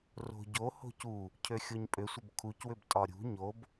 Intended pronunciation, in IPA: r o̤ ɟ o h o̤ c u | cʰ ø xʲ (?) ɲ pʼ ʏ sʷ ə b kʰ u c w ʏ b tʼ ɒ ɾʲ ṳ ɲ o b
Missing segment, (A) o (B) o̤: A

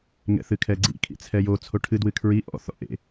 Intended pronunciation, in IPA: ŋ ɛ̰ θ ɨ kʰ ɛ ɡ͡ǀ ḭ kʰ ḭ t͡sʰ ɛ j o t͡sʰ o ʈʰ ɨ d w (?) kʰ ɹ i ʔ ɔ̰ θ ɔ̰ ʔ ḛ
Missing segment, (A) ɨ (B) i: A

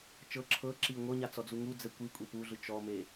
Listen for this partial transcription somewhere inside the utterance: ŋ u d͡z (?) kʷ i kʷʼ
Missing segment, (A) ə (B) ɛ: B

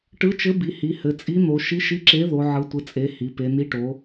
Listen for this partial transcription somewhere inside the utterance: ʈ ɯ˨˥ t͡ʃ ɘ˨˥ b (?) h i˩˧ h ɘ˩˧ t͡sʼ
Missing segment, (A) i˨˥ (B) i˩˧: B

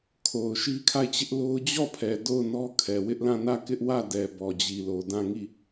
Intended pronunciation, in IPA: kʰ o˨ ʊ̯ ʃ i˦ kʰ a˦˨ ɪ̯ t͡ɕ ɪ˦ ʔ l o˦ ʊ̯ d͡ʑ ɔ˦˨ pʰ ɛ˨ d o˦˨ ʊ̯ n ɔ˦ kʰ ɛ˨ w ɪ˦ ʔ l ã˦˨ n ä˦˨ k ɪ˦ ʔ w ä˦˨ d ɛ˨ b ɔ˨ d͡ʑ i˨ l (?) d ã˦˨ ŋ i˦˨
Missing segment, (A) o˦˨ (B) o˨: B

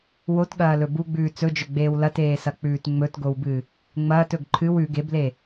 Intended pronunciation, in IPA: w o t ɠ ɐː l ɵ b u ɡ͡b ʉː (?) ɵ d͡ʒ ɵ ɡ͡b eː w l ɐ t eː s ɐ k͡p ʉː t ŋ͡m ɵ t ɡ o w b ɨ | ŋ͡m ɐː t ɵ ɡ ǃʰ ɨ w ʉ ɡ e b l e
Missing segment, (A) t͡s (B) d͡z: A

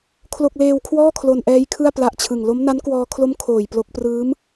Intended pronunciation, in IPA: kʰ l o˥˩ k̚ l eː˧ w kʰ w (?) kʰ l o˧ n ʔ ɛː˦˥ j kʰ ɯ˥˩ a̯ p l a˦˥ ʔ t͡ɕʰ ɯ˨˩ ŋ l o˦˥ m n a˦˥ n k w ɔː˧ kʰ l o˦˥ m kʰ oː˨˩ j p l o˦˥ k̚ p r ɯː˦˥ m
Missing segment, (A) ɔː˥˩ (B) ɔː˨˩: A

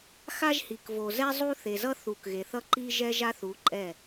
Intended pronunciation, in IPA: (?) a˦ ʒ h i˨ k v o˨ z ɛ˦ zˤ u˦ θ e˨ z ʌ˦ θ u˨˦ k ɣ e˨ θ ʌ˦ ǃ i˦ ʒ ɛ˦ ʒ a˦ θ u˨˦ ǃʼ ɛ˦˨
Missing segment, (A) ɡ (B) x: B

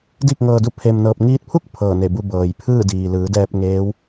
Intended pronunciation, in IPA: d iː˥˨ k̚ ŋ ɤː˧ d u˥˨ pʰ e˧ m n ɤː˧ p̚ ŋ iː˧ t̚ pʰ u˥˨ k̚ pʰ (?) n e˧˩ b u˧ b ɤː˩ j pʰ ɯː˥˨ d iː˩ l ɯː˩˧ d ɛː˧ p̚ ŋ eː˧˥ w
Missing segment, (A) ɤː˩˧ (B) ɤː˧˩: B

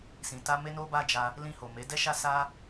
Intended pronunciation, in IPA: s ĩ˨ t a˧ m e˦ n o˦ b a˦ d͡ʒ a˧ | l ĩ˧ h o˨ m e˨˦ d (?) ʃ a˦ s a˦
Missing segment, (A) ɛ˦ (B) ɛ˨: A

